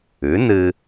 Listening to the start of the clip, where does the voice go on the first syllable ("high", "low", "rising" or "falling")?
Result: rising